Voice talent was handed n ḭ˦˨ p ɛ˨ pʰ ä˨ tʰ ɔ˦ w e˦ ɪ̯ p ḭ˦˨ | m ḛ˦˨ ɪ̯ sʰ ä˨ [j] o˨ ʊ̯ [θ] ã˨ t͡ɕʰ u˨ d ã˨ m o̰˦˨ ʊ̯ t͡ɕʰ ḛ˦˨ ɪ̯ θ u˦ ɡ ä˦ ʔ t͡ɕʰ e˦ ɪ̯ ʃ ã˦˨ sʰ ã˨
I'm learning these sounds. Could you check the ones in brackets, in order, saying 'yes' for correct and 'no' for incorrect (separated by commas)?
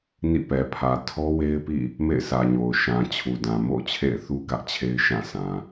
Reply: no, no